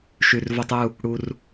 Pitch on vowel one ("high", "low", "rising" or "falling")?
low